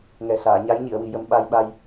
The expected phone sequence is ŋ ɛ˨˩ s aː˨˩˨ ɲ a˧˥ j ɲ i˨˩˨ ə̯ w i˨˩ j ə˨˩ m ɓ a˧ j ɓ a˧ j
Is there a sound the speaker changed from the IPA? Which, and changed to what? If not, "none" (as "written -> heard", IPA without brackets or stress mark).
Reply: none